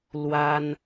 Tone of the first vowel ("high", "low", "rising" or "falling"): high